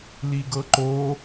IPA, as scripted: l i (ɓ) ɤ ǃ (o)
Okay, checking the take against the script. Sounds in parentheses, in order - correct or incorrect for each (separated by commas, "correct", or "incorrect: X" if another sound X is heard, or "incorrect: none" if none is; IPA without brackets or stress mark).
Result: incorrect: ɡ, correct